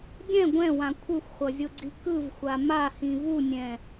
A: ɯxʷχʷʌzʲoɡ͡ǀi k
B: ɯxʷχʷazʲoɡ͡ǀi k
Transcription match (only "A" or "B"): A